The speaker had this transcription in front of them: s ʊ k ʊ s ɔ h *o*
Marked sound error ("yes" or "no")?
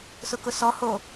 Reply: no